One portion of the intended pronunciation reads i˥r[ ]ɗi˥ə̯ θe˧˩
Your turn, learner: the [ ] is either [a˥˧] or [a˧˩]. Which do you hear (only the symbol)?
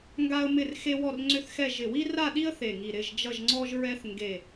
a˥˧